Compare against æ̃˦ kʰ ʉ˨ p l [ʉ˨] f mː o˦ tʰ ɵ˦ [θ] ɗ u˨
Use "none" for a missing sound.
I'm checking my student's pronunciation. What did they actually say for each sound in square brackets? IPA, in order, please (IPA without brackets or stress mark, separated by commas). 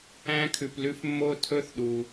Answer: ʉ˦, θ